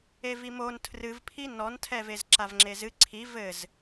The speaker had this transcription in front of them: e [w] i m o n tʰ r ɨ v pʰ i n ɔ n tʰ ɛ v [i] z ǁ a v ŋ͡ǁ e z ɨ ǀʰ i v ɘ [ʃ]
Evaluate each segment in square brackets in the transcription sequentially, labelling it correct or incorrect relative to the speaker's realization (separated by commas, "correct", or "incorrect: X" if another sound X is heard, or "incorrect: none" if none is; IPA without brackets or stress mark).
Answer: incorrect: v, incorrect: e, incorrect: z